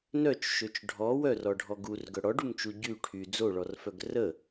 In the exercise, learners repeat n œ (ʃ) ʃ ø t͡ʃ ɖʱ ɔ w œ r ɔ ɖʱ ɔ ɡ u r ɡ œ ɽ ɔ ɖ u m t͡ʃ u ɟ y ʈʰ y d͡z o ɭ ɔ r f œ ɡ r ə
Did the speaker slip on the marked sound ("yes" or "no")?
yes